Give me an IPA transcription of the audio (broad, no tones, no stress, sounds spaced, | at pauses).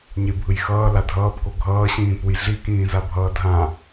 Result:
ɲ e bʱ ɯ j x ʌː l a dʱ ʌː p k o ɡʱ ʌː ɕ ĩː p u j ɮ i k ĩː z a bʱ ʌː dʱ ã